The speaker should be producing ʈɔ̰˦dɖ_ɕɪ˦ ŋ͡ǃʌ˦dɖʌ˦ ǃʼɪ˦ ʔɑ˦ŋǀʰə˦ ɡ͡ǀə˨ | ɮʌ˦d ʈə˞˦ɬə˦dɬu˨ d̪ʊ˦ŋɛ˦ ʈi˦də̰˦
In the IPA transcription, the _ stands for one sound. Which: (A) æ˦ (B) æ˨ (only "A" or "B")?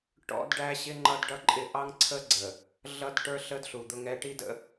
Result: A